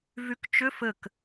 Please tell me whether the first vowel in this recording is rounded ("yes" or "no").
yes